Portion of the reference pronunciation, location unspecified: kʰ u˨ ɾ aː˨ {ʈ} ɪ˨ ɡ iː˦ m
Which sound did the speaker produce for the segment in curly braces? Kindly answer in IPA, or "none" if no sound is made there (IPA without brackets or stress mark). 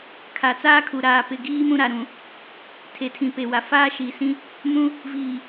p